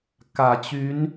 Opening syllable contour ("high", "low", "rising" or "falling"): low